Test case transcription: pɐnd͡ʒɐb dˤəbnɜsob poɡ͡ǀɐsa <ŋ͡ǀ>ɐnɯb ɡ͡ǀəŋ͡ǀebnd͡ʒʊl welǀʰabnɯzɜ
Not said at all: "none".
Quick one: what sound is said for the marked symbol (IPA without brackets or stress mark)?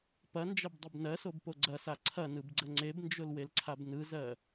ǀʰ